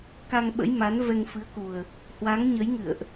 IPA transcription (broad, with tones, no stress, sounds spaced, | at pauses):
k a˧ ŋ ɓ ə̰˧˥ j m a˨˦ n v ɛ˧ ŋ f ɨ˨˦ ə̯ k u˨˩ ə̯ | h w a˨˦ ŋ ɲ ə˨˦ j ŋ ɨ̰˧˨ ə̯ ʔ